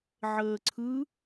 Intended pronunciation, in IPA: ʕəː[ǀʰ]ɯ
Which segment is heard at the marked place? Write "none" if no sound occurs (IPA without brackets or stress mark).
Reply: ǀʰ